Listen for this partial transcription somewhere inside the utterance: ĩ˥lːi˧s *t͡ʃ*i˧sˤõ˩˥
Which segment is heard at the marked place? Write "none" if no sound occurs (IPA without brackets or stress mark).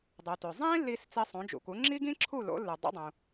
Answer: t͡s